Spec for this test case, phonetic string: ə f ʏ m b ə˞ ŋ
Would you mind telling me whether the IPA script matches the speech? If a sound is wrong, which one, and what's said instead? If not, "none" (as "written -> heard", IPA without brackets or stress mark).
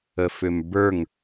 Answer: none